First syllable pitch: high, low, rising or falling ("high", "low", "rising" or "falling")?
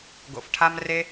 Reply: low